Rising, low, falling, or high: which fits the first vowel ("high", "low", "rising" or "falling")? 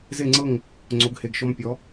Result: falling